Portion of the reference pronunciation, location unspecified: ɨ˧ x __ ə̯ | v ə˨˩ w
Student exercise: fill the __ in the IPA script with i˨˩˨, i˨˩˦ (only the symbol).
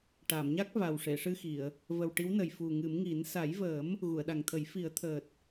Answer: i˨˩˨